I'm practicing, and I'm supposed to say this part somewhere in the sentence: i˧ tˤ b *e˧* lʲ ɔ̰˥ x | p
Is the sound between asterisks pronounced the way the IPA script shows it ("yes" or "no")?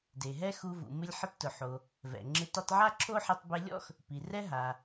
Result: yes